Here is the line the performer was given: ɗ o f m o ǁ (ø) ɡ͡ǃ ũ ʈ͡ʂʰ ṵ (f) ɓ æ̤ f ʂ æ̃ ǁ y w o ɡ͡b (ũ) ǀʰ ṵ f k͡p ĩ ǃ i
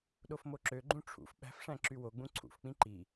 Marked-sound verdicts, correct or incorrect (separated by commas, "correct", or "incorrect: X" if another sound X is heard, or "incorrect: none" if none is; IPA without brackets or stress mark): correct, correct, correct